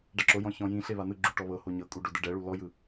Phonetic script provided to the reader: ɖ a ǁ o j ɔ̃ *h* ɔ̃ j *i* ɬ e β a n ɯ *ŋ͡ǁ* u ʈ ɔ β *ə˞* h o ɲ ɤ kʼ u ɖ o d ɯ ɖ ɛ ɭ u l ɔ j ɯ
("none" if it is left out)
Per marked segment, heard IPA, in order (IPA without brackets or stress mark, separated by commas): ç, ĩ, ɡ͡ǁ, ɤ